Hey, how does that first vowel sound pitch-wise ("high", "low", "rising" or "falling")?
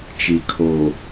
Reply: low